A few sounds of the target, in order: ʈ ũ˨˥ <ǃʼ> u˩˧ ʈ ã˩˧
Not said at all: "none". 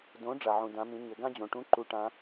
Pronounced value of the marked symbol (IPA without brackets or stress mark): ǃ